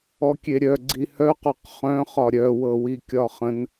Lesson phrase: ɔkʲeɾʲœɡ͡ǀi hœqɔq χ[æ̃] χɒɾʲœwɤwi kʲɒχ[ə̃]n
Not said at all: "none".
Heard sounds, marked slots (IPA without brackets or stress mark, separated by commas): œ̃, ə̃